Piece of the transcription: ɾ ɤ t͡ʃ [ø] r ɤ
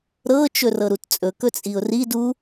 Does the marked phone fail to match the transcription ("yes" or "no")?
yes